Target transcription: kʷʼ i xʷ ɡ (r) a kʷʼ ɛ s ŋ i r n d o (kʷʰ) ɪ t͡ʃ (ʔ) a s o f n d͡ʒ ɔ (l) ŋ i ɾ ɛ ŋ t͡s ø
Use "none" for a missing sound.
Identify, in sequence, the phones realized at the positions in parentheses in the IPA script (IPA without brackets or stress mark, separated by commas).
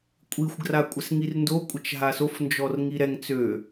r, kʷʼ, ɦ, r